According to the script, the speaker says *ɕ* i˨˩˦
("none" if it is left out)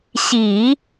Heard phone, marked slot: ɕ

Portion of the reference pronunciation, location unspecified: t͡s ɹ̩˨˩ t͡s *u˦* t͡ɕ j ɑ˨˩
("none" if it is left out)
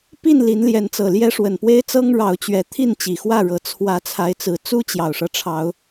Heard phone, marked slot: u˦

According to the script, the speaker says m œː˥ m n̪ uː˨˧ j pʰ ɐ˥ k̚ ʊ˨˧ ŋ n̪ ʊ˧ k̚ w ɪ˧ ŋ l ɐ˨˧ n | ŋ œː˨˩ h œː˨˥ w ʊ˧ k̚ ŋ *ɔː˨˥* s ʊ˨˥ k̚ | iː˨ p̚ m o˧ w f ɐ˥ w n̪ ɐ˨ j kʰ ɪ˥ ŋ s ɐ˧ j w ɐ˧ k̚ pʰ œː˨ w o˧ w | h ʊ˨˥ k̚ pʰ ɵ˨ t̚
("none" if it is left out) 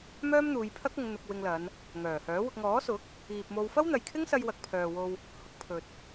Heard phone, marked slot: ɔː˨˥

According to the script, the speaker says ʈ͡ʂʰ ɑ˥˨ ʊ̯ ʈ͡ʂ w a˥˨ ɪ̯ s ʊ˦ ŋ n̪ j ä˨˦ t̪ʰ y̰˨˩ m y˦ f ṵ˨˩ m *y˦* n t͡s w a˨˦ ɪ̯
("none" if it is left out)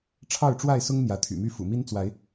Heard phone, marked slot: i˦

